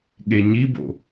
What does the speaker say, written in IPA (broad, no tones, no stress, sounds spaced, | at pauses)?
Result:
ɠ e ɲ i b o̰